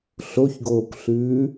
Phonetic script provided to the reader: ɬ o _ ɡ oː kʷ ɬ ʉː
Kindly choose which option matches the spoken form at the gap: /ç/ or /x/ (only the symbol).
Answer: ç